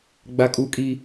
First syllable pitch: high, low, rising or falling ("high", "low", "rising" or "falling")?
high